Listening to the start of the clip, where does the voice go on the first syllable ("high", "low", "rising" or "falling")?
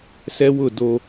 high